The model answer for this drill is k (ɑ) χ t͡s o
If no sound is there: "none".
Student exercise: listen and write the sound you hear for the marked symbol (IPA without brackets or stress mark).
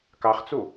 ɑ